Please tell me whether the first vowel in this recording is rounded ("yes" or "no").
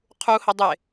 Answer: yes